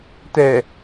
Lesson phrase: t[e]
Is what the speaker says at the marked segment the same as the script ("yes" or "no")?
no